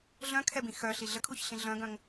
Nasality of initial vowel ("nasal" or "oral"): nasal